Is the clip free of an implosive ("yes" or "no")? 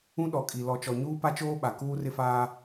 no